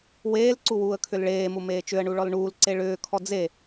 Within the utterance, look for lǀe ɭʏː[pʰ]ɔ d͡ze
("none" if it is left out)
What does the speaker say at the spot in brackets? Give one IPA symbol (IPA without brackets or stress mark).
kʰ